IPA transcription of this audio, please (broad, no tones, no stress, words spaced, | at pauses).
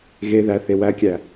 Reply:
ɣeðæθe wækʲæ